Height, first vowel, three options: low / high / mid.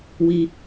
high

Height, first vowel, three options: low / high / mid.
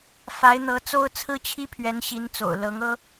low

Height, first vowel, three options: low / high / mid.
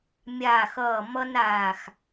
low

